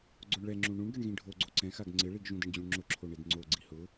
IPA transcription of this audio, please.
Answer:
ɡ͡ǀ o ɳ ɭ ɛ ŋ͡ǁ ũ ɳ ũ ɳ ɡ ɛ ɳ ɣ ĩ ɖʱ o ɡ͡ǀ o ǀ ɛ̃ x a ɡ ŋ͡ǀ ɪ ɭ i ɡ ʒ ũ d ɪ ɳ d͡ʑ ũ ɳ ŋ͡ǁ ʊ ǁʰ o ɳ e d ŋ͡ǀ o ɡ͡ǀ i h ʊ

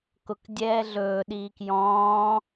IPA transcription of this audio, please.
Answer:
k ʊ k dʲ ɛː ɮ ɵː ɗ iː k j ɔ̃ː

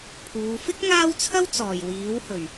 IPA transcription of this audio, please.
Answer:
pʰ uː˨˧ f ɪ˥ k̚ ŋ aː˥ w t͡sʰ ɐ˥ w t͡s ɔː˨˩ j w iː˨˥ w h ɵ˨˩ ɥ

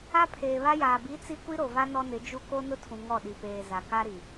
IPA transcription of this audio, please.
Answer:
a˦ pʰ eː˨ β a˦ j aː˨ b i˨˦ t͡s i˦ kʷ i˦ ɾ o˨ v a˦ n ɔ˦ n ɪ˨˦ d͡ʒ u˦ k o˦ n ʊ˦ tʰ ũ˨ ŋ ɔ˦˨ ɗ i˨ p eː˨ z a˨ k a˦ ɾ i˨

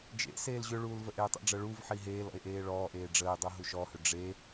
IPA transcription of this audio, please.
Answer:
d͡ʒ ḛ s eː l ʑ ʏ ɭ uː l v ə ʔ eː tˤ ə̰ ɖ͡ʐ ə ɭ u v ħ i ɦ eː l ɔ̰ e̯ ʔ eː ɭ ɔː ʔ eː ɖ͡ʐ əː e̯ dˤ u ɦ u ʃ ɔ h ʏ ɖ͡ʐ e

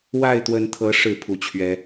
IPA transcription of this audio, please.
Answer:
w a˥˨ ɪ̯ t̪ w ə˨˦ n t̪ʰ ɤ˨˦ ʂ ɻ̩˥˨ pʰ u˨˩ t͡ɕʰ ɥ ɛ˨˦

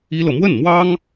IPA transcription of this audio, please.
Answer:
i˥ l ɤ˨ m w ə˥˩ n m w ɑ˥ ŋ

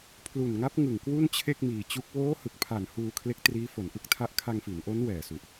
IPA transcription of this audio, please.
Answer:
pʰ l u˨˩ n ŋ a˦˥ p̚ ŋ ɯ˨˩ ŋ k w u˥˩ n t͡ɕʰ e˥˩ k̚ m iː˨˩ t͡ɕ u˦˥ k̚ w oː˦˥ h ɯ˨˩ k̚ pʰ a˨˩ n h uː˧ kʰ l e˦˥ k̚ t r iː˦˥ f o˩˦ n ʔ ɯ˦˥ k̚ tʰ a˦˥ ʔ kʰ a˧ ŋ f i˩˦ n ʔ o˦˥ n w ɛː˨˩ s u˨˩ ʔ

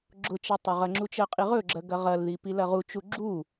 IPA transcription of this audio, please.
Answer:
ɡ͡ǁ ʊ t͡ʃ ɐ tˤ ɵ ʁ ɐ ŋ͡ǁ u t͡ʃ ɜ qʼ i ʁ ɵ ɡ͡ǁ ɜ ɡ ɐ ʁ ɐ l ð i p i l ɐ ʁ u t͡ʃ u ɡ͡ǁ u

